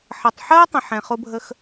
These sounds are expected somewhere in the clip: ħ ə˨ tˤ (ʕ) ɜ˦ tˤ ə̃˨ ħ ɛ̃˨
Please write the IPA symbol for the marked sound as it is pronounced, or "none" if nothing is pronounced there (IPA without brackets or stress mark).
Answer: ħ